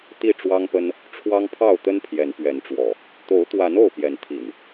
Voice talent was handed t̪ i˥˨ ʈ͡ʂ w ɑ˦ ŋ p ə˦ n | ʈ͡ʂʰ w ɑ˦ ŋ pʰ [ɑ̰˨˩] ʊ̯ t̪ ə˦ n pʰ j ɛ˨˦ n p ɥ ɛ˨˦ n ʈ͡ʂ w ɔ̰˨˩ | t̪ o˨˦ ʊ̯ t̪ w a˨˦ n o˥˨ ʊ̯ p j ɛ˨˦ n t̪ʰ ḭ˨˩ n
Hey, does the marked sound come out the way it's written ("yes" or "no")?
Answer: no